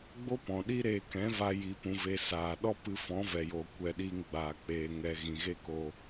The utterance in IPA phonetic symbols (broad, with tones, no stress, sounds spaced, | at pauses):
ɡ͡b o˦ p ɔ̃˨ ɗ i˦ ɾ eː˧ k ɛ̃˨˦ v a˧ j i˨ p ũ˨ v e˨ s aː˨ ɗ ɔ˦ p ɨ˧ f ɔ̃˨˦ v ɛ˨ j oː˨ kʷ ɛ˨ ɗ iː˧ ŋ ɡ͡b aː˨ k͡p eː˨ ŋ ɛ˨ ɣ ĩ˨ ɣ e˦ k o˧